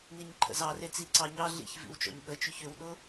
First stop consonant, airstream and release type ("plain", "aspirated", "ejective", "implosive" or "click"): click